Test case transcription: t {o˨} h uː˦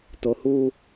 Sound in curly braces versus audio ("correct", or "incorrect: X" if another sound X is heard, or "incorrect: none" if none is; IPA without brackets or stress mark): correct